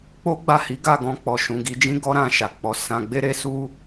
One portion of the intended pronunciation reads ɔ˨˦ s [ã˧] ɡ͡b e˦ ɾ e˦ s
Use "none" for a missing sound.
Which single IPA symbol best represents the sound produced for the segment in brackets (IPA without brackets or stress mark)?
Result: ã˧